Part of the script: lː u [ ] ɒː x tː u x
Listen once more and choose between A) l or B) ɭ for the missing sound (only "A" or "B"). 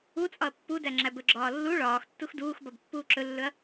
B